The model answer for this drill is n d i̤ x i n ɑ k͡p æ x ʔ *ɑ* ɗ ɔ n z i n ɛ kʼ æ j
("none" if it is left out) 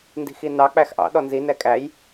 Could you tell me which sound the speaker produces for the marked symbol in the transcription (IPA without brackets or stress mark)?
ɑ̰